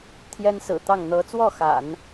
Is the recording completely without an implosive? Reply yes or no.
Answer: yes